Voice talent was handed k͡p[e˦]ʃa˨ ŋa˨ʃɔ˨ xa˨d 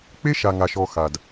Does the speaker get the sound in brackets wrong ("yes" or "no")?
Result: no